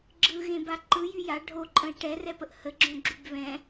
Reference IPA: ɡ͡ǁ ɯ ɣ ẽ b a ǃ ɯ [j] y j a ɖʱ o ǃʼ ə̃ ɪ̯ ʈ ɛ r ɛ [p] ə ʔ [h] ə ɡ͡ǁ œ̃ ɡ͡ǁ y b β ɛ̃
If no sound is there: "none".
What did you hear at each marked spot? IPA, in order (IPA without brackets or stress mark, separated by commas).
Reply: j, p, h